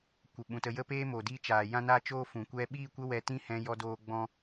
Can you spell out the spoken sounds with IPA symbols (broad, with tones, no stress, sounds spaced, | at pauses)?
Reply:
kʷ ə˨ ɓ ũ˨ t ə˧ j ə˦ p eː˦ m o˨ d i˦ t͡ʃ aː˨ j ã˦ n a˦ t͡ʃ oː˦ f ũ˨ kʷ ɛ˧ ɓ iː˦˨ kʷ ə˦ w ɛ˧ t ĩ˦ h ɛ̃˦ j ɔ˦ d oː˦ ɡ͡b ɔ̃˦